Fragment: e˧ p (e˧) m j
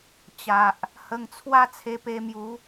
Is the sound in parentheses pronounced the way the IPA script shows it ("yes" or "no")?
yes